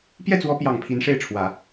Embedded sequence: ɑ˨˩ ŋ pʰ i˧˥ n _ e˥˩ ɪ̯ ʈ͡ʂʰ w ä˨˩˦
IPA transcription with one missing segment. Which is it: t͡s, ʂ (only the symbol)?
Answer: ʂ